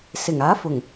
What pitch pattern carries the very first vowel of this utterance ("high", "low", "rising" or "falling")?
low